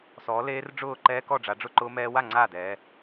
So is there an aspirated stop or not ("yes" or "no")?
no